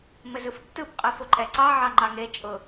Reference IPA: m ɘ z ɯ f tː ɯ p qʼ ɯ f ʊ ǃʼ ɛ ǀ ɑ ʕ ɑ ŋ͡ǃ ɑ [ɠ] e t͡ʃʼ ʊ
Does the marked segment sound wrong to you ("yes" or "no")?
yes